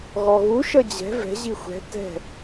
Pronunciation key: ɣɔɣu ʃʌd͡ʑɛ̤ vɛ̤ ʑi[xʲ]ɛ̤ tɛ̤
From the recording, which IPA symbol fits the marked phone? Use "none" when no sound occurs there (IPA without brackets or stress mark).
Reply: xʷ